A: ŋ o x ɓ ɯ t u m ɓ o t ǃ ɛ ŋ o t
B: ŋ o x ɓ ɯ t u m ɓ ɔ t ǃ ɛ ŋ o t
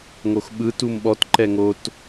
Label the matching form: B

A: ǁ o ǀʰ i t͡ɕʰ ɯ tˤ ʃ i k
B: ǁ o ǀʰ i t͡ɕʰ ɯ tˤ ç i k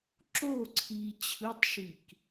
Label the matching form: A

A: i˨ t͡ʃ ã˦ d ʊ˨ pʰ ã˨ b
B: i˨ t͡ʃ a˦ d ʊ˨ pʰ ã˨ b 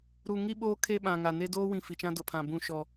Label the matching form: A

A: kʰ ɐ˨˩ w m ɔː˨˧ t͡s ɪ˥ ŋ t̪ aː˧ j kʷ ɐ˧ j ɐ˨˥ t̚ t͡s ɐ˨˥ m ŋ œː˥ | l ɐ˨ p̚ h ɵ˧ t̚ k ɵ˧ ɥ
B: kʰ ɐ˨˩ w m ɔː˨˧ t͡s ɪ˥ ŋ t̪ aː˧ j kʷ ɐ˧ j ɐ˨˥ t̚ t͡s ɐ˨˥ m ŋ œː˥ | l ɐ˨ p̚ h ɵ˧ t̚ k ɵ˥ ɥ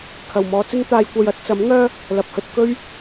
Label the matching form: B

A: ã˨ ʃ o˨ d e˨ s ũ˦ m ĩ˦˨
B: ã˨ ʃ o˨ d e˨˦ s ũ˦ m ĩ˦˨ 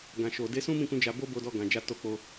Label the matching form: B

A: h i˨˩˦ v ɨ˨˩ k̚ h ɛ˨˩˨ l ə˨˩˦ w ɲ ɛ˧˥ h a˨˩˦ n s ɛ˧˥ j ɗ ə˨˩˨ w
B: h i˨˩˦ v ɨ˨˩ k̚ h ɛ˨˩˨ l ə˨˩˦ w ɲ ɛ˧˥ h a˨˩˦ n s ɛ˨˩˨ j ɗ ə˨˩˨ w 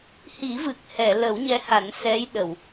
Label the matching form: A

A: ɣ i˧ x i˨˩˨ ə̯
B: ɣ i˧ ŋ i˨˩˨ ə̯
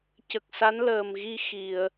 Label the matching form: A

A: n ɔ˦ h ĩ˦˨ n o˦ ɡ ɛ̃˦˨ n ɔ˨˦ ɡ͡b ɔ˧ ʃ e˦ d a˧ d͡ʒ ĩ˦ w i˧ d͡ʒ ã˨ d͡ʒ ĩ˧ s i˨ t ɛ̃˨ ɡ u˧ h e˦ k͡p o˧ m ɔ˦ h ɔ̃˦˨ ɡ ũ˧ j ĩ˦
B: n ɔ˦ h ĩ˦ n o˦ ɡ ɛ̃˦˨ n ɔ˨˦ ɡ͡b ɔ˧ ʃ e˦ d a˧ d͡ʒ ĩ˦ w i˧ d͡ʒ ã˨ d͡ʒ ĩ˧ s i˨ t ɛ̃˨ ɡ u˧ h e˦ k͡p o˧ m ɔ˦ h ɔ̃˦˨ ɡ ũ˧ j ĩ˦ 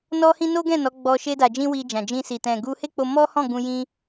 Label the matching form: B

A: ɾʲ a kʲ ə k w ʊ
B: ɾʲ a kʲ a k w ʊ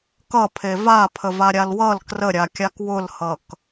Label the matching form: B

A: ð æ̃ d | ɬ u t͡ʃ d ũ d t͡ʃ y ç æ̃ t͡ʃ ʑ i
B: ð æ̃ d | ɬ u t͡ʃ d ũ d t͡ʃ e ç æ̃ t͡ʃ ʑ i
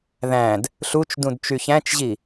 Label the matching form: A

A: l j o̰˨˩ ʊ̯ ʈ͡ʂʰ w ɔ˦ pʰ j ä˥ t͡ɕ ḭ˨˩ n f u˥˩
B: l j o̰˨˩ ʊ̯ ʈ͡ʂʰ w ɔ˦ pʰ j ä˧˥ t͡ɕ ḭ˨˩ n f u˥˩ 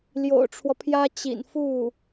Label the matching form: A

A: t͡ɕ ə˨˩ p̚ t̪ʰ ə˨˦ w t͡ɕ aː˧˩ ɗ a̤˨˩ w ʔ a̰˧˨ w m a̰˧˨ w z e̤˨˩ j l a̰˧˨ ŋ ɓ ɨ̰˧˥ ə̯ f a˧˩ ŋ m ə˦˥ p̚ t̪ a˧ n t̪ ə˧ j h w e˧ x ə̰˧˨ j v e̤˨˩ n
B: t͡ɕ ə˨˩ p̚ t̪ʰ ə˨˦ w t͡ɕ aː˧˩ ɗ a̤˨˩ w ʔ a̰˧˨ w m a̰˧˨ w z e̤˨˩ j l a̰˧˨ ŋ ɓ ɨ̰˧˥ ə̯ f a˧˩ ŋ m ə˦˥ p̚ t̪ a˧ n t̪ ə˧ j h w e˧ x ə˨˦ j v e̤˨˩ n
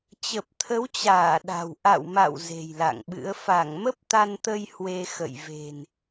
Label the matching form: A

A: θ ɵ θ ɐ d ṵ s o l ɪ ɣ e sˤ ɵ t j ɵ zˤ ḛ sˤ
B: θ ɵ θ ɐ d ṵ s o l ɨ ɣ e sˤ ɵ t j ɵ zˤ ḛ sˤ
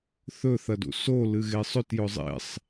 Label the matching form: B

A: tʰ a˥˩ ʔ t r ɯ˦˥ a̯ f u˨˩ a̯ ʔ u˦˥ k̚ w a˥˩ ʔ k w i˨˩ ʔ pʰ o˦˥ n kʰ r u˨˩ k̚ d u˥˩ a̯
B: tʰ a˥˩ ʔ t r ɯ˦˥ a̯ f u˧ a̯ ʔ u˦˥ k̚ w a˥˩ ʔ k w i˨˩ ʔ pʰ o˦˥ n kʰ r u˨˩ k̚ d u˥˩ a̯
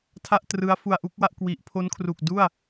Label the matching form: B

